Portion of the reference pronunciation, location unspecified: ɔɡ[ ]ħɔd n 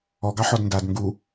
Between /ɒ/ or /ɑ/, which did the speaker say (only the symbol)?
ɑ